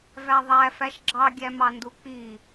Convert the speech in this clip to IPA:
væðˤæ fæʃɡ͡ǁɑ ɡʲæmɑnduk͡pi

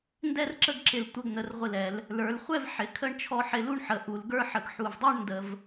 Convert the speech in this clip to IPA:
ndɛ˥˧rǁə˥˧ɡǁɪ˧˩l tʷə˧ɡ n̪ə˩˧rʁʷɪ˧˩lɛ˩˧l | lə˞˩˧lχʷɛ˥˧v ħɪ˩˧kʰə˥˧ɳ t͡ʃʰɔ˧ħɪ˧lu˥˧ɳħə˩˧ ʔu˩˧lɡə˞˥ħə˧ɡ ħu˧˩vdˤə˞˥ɳ ndə˧v

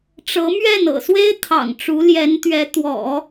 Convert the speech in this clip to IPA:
ʈ͡ʂɤ˧˥mɥɛ˥˩n ɤ̰˨˩swe˥ɪ̯ t̪ʰɑ̰˨˩ŋʈ͡ʂu˧˥ljɛ˧˥nt̪ɥɛ˧˥ t̪wɔ̰˨˩˦

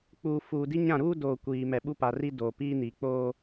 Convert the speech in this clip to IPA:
k͡puː˨ fuː˨di˦ ɲã˦˨ɾuː˦doː˨ kʷiː˨ mɛ˨ɓu˦pa˨ri˦ doː˨piː˦ni˨k͡poː˦

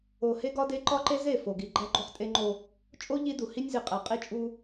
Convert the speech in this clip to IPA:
o˨ he˦ɡɒ˦de˦ ǃɒ˦ǃe˦ze˦˨ fo˨ɡi˨ ɡ͡ǃæ˦ɡ͡ǃo˦χtʼe˦ŋ͡ǃo˦ | t͡ʃʼo˦ ʎi˦du˨ hi˦nʲzi˨ qʼæ˨qʼi˦t͡ʃʼu˦

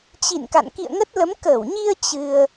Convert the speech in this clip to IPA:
t͡ɕḭ˧˨nka̰˧˨n kḭ˧˨ə̯ŋə˦˥t̚lə˨˦m kəː˧˩wɲi˧ə̯ t͡ɕɨ˧ə̯

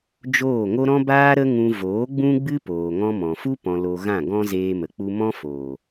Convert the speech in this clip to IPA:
d͡ʒoː˦˨ŋo˦ ɾɔ̃˦baː˦ɾə˦ŋũ˧ voː˨˦ɡ͡bũ˦ɡ͡bɨ˦ poː˨ŋɔ̃˧mɔ̃˨fu˦ pɔ̃˧lo˧ ɣã˦˨ɡɔ̃˦ zeː˧mə˨ k͡pu˧mɔ̃˦foː˨

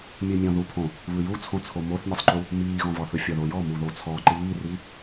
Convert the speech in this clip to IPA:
mʲɯmʲɔ̃ðupʰõ | βɯjut͡sʰõt͡sʰo moθmʲɯsˤǃu | miːɣɔ̃vɒ θɯfʲɒðojɔ muðot͡sʰɔ ǃiːri

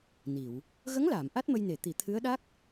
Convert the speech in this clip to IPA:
ni˨˩˨w | ɣə˧˥ŋlaː˨˩˨m ʔa˦˥t̚mə˧jne˨˩˨ t̪i˨˩˨ t̪ʰɨ˧˥ə̯ɗa˦˥k̚

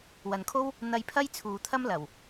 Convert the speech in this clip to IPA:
wɐ˨nkʰo˥w | n̪ɐ˧jpʰɐ˥j t͡sʰuː˨t̪ʰɐ˥m lɐ˨˩w

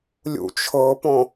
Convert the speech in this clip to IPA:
lʲṵt͡ʃʰɤpɔ̃

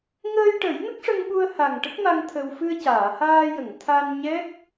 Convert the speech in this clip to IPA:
ŋəː˧jʈə˨˩˦j nə˦˥k̚ʂə˧ŋɓu˧ə̯ ha˨˩ŋʈə˦˥k̚ma˧ŋ t̪ʰə˧w fɨ˧ə̯caː˨˩˨haː˧jə˨˩˨ŋ t̪ʰa˧nɲɛ˦˥k̚

